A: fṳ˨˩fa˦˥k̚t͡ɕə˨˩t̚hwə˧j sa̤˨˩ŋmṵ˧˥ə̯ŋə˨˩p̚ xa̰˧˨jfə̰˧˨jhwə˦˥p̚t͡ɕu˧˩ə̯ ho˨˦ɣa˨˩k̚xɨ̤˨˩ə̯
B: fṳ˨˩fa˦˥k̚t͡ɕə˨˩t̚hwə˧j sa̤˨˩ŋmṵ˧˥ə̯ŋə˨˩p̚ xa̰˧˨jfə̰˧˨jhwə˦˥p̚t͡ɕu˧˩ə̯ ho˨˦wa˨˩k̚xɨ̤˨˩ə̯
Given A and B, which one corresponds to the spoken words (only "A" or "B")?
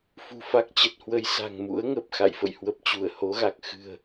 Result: A